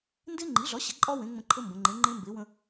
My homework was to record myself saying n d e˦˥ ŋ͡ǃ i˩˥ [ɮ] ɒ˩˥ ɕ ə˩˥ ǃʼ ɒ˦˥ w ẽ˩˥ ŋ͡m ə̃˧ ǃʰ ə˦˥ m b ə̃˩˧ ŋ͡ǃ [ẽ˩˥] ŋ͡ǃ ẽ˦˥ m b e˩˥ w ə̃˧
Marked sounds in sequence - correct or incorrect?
correct, correct

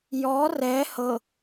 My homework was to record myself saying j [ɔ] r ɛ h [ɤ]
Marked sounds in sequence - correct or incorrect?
correct, correct

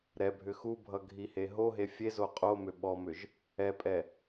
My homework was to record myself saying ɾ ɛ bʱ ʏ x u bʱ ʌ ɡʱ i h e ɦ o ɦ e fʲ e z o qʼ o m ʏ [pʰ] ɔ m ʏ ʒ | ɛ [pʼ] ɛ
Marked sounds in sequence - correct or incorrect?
incorrect, correct

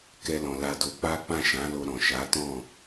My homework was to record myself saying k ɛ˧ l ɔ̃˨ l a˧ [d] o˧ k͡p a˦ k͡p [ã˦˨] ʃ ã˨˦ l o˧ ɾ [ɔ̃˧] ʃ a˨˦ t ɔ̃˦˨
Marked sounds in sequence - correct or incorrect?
correct, correct, incorrect

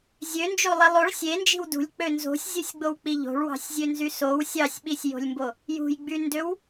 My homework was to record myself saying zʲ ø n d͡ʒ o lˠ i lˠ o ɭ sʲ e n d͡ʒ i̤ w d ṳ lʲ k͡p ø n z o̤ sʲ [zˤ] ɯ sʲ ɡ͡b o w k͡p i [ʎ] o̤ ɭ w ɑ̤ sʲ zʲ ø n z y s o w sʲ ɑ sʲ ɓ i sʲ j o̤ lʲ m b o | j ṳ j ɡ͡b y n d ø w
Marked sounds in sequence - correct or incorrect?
incorrect, correct

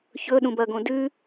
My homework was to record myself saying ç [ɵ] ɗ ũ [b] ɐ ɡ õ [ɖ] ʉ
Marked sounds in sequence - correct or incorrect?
correct, correct, incorrect

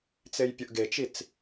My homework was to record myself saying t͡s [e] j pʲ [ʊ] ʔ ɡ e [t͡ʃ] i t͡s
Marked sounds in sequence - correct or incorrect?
correct, correct, correct

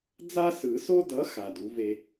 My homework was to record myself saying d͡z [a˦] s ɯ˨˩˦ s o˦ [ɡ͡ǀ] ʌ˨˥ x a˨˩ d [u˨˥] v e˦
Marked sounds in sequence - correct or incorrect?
correct, incorrect, correct

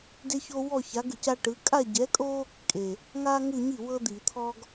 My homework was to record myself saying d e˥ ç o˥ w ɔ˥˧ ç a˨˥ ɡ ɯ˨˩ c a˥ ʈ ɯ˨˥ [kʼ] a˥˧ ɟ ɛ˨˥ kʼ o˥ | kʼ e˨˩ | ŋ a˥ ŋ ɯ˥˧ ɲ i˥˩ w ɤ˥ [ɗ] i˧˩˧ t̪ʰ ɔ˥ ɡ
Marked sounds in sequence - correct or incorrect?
correct, incorrect

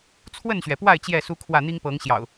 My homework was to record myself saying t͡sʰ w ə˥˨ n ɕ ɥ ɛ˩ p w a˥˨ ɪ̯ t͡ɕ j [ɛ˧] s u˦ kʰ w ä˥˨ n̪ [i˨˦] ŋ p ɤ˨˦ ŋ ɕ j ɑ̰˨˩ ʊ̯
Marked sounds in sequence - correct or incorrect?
incorrect, incorrect

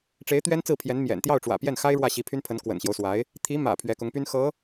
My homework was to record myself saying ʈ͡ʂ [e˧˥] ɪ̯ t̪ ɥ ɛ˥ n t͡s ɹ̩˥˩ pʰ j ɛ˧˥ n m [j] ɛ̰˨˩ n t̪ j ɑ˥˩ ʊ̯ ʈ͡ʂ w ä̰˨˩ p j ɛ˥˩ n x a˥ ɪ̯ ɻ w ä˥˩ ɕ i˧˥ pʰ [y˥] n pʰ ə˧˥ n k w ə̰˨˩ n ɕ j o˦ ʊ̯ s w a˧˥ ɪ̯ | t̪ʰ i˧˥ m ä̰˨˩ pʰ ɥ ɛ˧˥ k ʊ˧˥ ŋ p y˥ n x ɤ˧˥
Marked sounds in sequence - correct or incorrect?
correct, correct, correct

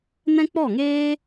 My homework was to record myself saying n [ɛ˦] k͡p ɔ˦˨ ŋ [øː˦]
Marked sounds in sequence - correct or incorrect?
incorrect, incorrect

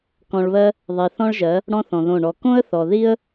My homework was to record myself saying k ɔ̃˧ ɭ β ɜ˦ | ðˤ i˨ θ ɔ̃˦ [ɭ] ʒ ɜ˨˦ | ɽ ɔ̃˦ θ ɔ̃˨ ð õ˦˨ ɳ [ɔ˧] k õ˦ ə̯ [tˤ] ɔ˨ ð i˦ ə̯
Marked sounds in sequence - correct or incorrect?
correct, correct, incorrect

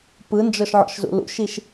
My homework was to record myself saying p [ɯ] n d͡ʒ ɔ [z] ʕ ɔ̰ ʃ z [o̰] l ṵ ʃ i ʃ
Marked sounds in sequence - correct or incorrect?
correct, incorrect, incorrect

